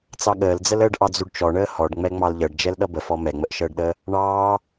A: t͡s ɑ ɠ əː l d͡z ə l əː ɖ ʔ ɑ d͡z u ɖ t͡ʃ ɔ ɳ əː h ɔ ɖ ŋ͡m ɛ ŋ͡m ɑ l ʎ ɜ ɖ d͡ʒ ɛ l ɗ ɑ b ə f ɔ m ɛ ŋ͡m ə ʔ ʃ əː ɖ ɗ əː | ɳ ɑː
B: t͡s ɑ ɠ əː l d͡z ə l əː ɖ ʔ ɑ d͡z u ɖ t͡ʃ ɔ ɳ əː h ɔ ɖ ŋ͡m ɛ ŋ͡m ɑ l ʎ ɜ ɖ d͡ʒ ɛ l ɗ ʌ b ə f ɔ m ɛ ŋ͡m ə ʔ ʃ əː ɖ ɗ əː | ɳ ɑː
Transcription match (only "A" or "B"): B